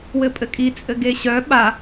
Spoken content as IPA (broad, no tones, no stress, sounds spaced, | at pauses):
w ɘ pʼ ɘ kʼ i t͡sʼ ɘ ɡ e ɕ œ ɓ a